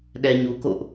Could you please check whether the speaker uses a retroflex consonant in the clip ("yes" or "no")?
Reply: no